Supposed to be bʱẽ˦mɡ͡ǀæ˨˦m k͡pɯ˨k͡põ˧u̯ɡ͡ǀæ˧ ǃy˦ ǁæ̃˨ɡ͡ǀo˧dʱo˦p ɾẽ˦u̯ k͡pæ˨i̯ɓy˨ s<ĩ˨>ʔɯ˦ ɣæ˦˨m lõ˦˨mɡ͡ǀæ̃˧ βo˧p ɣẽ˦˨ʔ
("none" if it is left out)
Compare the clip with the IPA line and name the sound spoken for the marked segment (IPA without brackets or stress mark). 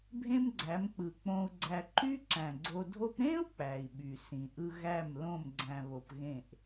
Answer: ĩ˨